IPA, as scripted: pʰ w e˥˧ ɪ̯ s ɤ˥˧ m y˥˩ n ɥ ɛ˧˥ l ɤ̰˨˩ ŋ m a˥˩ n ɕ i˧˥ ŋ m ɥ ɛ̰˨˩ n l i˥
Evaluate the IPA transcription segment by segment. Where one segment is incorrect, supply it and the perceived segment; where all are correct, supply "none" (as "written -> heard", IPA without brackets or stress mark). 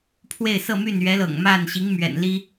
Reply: none